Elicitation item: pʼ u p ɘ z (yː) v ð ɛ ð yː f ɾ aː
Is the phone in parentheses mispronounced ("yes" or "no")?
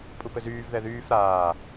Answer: no